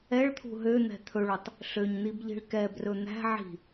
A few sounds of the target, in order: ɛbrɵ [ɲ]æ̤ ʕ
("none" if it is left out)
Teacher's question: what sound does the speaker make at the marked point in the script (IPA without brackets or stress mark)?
n̪